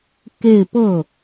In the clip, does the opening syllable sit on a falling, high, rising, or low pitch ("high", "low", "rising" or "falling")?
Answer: falling